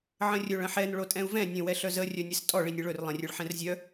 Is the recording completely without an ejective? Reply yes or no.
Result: no